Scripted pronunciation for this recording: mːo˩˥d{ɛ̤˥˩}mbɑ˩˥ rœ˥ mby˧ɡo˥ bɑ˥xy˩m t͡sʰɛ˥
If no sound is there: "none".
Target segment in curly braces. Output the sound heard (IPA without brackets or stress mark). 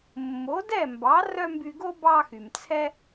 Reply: ɛ˥˩